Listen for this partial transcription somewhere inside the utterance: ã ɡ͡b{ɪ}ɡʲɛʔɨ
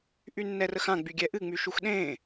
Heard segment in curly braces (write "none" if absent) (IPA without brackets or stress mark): y